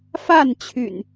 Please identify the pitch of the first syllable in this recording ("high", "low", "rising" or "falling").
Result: falling